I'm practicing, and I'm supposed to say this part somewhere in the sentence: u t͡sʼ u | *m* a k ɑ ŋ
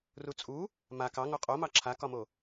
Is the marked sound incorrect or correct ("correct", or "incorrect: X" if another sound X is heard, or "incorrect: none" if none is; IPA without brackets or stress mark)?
correct